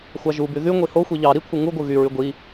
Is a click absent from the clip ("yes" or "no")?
yes